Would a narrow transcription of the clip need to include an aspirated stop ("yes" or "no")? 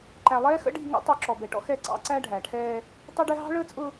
yes